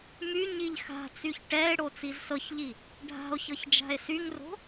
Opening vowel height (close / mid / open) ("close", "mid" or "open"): close